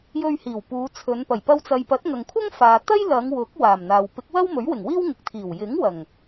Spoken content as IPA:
j ɵ˧ ɥ h iː˨˩ w p uː˨˧ t͡sʰ ɵ˨˧ n p ɐ˨˩ j p ɐ˧ w t͡s ɐ˨ j p ɐ˨˥ t̚ ŋ ɐ˨ ŋ kʷʰ ɐ˥ ŋ f aː˨ t̪ ɐ˥ j l ɐ˨˧ ŋ w ʊ˨˥ k̚ w aː˨˩ m n̪ aː˨ w p ɪ˨˥ k̚ w ɐ˥ w m ɵ˨˥ ɥ w ɪ˨˩ ŋ w iː˥ w ŋ ɪ˨ k̚ t̪ʰ iː˨˩ w j ɪ˨˥ ŋ w ɐ˨˩ ŋ

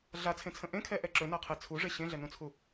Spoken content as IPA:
ɮ a t͡sʰ ẽ t͡sʰ ə̃ ʔ ẽ kʰ ɛ ʔ ɛ ǁ ɵ n a qʰ e t͡sʰ u ʐ e ɕ ẽ ɮ ɛ n ũ t͡sʰ u

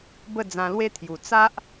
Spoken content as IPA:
b ə˥˧ d͡z ã˧ l w e˦ t̪ʰ j u˨˩ t͡s a˦ ʔ

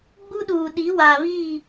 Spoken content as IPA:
ɡ͡b u˦ ɗ uː˨ ɗ i˨˦ w aː˨ β iː˦˨

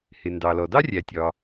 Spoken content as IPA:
h ɪ˩ n d ɑ˩ l ɔ˩ d ɑ˥ rʲ æ˩ tʲ ɒ˩

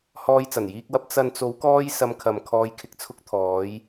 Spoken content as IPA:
h ɔː˧ j t͡s ɐ˨˩ n j iː˧ k̚ w ɐ˧ p̚ t͡s ɐ˨ n t͡s o˨˧ w k ɔː˧ j s ɐ˧ m kʰ ɐ˨ m kʰ ɔː˧ j kʰ ɪ˧ k̚ t͡sʰ ʊ˧ k̚ t̪ʰ ɔː˨˧ j

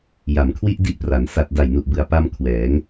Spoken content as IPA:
j a˩˦ m kʰ w i˥˩ ʔ d i˦˥ ʔ p r a˩˦ n s a˨˩ t̚ d a˨˩ j n u˨˩ ʔ b ɯ˨˩ a̯ p a˧ m kʰ w ɛː˩˦ ŋ

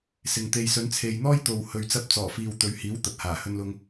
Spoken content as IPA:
s ɪ˨ ŋ t̪ e˨ j s ɵ˨˧ n t͡sʰ e˨ j n̪ ɔː˥ j t̪ o˨ w h ɵ˨ ɥ t͡s ɐ˧ p̚ t͡s ɔː˨˩ f iː˨ w t̪ ɵ˨ ɥ h iː˨˥ w t̪ ɐ˨ t̚ h aː˨˩ h ɵ˧ n l ʊ˧ ŋ

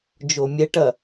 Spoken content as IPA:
d͡ʒ o mʲ ɛ ʈ ɐ

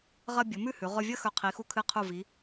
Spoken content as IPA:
ʁ ɐ˧ bʲ ɵ˩˧ m ʉ˥˧ h ʉ˩˧ ʁ ɵ˧ vʲ ɐ˥ x ɵ˧˩ qʰ i˩˧ x u˧˩ kʰ ɨ˧˩ qʰ u˧˩ v i˩˧

